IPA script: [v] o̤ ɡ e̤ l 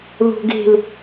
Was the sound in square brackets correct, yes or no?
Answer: no